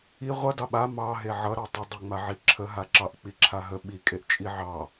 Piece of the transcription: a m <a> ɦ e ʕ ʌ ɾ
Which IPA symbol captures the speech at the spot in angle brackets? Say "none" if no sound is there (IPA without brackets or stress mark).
ɑ